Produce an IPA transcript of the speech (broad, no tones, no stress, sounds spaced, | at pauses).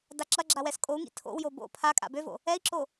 d a ǁ ɐ ɡ͡ǁ a w ɛ s kʼ o u̯ ŋ ḭ tʰ o̰ w j o b o̰ pʰ a kʼ a̰ b ø v o̰ | ɛ i̯ ǁ o